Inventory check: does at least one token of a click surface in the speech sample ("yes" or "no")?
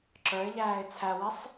yes